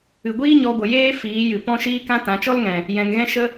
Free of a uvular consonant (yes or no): yes